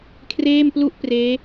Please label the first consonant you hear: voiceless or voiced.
voiceless